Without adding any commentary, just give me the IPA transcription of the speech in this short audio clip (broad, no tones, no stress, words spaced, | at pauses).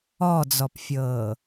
ɔd͡zɔpfʲɤː